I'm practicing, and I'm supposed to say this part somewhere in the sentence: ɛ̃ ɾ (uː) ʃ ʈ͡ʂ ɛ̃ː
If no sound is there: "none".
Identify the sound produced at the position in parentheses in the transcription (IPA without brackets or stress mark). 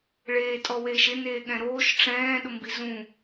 oː